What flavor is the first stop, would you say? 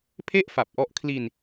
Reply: aspirated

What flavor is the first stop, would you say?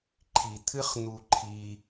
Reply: click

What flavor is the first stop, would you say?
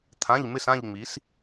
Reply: aspirated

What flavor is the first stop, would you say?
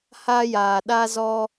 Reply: implosive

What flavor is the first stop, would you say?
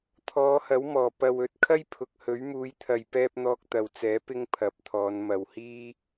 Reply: aspirated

